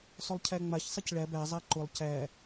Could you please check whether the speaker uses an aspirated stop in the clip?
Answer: yes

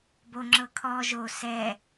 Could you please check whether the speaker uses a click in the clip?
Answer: yes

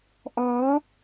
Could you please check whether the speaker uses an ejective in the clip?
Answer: no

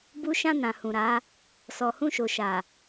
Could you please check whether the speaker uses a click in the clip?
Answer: no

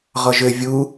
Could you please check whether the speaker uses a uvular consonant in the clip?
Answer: yes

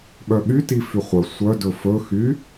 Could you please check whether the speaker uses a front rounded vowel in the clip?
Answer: yes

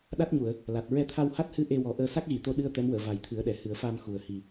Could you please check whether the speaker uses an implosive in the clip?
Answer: yes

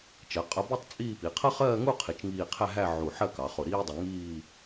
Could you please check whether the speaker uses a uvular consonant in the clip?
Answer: yes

